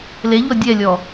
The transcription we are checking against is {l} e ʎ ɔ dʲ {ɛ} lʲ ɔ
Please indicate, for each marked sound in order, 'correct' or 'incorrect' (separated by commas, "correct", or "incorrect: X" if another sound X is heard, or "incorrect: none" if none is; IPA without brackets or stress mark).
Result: correct, correct